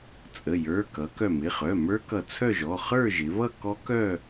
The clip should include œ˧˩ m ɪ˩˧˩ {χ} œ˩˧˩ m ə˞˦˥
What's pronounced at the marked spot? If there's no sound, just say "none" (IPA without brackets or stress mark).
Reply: χ